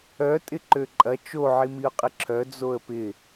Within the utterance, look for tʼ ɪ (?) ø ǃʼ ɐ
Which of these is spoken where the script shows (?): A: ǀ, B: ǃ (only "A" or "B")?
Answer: B